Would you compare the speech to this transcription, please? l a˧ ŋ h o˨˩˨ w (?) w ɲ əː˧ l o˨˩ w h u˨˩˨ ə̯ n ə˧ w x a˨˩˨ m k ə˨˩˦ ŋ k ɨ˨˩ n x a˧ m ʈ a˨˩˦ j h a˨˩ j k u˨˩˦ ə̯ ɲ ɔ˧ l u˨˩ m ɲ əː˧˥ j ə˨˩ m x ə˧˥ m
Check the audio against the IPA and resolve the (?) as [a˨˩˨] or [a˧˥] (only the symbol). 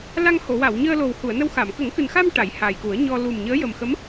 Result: a˨˩˨